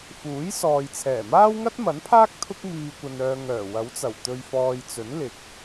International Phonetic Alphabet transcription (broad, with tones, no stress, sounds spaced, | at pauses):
f uː˨˥ j s ɔː˨ j t͡sʰ ɛː˨˩ m aː˥ w ŋ ɐ˥ t̚ m ɐ˨˥ n pʰ aː˥ k̚ t̪ʰ ʊ˧ k̚ m iː˨ kʷ ɐ˨ n œː˨ ŋ œː˨˩ w ɐ˨˥ w t͡s ɐ˨˩ w t̪ ɵ˨ ɥ f ɔː˨ j t͡s ɵ˨˥ n l ɪ˨ k̚